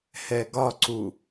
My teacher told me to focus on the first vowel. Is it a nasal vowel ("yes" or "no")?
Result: no